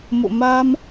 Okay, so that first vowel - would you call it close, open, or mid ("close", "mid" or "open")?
mid